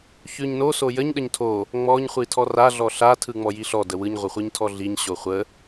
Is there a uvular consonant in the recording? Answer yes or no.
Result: yes